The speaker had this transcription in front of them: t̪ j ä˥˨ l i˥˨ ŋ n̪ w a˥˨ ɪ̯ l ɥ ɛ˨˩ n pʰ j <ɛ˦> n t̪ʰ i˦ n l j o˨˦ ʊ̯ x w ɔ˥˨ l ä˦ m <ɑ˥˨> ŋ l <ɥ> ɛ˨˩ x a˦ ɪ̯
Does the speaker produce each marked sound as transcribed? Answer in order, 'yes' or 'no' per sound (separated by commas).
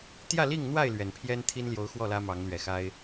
yes, no, yes